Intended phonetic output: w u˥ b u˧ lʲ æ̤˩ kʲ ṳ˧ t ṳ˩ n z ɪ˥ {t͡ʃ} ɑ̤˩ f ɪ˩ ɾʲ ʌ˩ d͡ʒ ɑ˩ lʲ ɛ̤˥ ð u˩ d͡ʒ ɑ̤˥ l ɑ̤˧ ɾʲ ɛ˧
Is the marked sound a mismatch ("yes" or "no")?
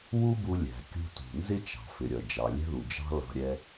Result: no